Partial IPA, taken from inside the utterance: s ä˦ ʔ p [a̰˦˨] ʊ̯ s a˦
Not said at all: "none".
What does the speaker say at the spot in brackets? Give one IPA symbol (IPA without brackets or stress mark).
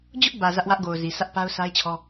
a˦